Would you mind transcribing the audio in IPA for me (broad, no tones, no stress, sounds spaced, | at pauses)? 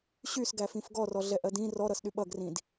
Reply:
ɕ y s ɡ æ f ĩ f ɡ ɔ r ɔ ɮ ɛ ʔ ɜ d ĩ r ɔ ɾ ʌ s ɗ y ɓ ʌ ɡ r ĩ d